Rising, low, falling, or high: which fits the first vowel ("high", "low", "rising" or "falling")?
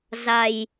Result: low